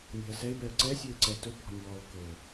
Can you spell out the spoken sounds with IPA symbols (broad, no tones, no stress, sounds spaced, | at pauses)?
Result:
nʲ a̤ ə̯ s ɛ ɪ̯ b ɛ ə̯ ǀ ɛ sʲ o ɪ̯ ǀ ɛ t ɵ b ɔ̤ nʲ ɔː ɭ k ɵ